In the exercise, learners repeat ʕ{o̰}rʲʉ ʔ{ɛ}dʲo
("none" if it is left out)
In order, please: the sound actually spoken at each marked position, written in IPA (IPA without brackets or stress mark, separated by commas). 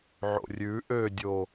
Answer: o̰, ø